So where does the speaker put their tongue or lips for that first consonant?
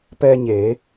lips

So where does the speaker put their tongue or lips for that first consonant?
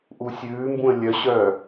throat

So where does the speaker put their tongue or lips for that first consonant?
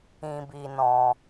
lips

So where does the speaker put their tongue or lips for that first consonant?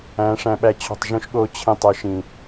retroflex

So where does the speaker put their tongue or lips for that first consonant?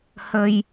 throat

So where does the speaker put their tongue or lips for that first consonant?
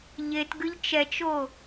palate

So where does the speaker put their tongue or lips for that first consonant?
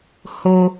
throat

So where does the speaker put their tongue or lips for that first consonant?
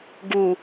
velum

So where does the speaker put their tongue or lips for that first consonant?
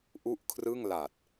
throat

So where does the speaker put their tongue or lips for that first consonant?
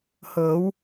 throat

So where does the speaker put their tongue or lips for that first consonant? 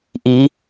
throat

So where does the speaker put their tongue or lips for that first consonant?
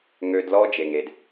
velum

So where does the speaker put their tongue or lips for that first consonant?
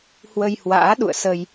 throat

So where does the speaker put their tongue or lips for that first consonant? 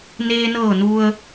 tongue tip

